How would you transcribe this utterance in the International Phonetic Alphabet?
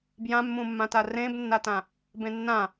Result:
b j ã mː ũ mː ã t a r ẽ b nː a t ã | b ẽ nː ã

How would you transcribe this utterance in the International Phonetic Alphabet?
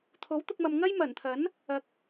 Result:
t̪ʰ o˨˥ w t̪ ʊ˧ k̚ m ɐ˨ m ŋ ɐ˥ j m ɐ˨˩ n t̪ʰ ɐ˨˥ n | ɐ˨ k̚

